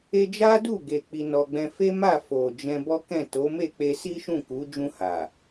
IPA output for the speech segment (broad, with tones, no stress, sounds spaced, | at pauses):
e˧ d͡ʒ a˦ d u˦˨ ɡ e˨ k͡p i˧ n ɔ˧ ɡ͡b ɛ̃˦ f e˦ m a˦˨ f o˨ d͡ʒ ɛ̃˧ b ɔ˦ k ɛ̃˦˨ t o˨˦ m e˦˨ k͡p e˧ s i˦ ʃ ũ˦˨ k u˨˦ d͡ʒ ũ˧ h a˨